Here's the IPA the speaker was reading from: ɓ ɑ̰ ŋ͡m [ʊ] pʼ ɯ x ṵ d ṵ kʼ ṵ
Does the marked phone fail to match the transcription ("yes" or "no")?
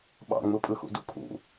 yes